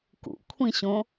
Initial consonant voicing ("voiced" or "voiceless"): voiceless